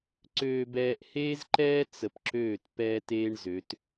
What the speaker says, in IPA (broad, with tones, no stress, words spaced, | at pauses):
ǀøː˨bɛː˨ʔ heː˦zǃɛː˦ t͡sə˨pǁøː˦˨t pɛː˦teː˦ɳzø˨˦t